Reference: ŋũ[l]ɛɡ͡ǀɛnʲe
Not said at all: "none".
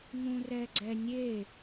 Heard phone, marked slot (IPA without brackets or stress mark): r